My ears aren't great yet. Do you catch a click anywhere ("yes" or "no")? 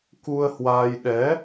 no